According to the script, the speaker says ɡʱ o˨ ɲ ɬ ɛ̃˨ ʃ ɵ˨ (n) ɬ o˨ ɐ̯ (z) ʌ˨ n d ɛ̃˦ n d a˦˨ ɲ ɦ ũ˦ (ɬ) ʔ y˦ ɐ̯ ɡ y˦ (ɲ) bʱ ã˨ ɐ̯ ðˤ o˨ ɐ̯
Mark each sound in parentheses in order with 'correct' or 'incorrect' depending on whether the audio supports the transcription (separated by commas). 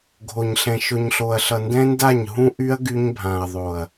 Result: incorrect, incorrect, incorrect, correct